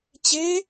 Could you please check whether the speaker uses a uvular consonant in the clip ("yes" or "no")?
no